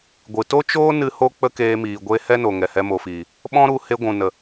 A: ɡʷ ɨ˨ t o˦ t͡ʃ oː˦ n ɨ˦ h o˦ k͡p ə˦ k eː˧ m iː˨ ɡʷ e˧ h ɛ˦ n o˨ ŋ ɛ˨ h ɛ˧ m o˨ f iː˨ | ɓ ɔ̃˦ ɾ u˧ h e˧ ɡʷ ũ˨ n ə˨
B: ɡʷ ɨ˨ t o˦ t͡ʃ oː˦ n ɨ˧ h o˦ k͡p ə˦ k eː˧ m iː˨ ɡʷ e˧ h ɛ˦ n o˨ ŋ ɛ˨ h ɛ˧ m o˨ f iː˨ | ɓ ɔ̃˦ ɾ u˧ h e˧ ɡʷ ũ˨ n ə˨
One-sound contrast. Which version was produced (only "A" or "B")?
B